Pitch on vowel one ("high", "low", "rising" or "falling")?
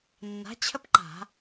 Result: rising